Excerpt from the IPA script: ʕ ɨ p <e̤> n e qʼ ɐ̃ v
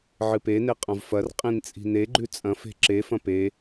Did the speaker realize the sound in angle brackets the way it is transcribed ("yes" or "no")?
no